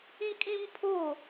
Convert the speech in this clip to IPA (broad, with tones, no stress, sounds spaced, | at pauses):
ĩ˦ kʼ ĩ˦ m pʰ o˦˨